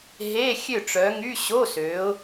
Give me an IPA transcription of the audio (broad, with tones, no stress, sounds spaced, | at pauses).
ɦ e˧˥˧ xʲ ø˥˨ ʈ͡ʂ œ˨˦ ŋ y˧˥˧ ɕ o˧˥˧ s ø˨˦ ʊ̯